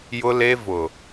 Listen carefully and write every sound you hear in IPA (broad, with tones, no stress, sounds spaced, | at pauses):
j ʊ˦ l e˦ v ʊ˨